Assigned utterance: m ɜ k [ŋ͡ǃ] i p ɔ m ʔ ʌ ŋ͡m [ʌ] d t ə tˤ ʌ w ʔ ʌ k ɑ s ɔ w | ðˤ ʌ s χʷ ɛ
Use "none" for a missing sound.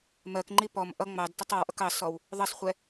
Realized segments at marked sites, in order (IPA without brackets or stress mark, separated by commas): ŋ͡ǃ, ɑ